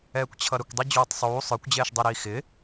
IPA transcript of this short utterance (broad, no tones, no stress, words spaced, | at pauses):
ɛːkʷt͡ɕʰʌɾəkʷdˤi d͡ʑuːtˤsˤuː sˤə˞kʷd͡ʑɛːʃdˤiɾiː xɪ